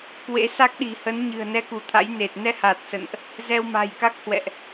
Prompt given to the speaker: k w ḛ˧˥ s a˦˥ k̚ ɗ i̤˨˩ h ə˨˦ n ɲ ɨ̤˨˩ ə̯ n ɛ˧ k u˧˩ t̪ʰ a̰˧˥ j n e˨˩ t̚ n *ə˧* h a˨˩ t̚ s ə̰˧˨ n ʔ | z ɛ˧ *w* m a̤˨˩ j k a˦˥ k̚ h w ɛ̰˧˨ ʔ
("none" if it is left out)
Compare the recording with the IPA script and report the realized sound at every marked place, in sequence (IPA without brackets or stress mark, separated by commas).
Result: ɛ˧, w